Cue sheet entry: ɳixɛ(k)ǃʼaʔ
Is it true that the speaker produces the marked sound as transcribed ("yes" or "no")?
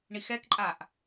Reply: yes